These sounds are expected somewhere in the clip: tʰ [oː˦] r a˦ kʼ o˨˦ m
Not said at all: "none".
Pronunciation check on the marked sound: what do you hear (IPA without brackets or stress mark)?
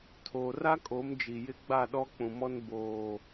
oː˨